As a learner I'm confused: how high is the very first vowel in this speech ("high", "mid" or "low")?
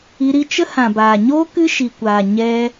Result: high